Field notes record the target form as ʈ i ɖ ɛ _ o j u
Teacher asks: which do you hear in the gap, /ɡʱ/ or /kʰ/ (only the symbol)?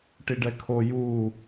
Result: kʰ